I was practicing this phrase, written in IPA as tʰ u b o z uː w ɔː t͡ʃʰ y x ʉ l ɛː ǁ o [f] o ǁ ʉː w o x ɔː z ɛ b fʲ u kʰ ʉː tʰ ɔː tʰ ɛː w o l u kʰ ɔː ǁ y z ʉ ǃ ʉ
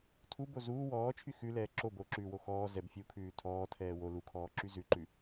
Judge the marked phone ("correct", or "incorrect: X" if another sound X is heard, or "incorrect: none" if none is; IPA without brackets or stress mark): incorrect: b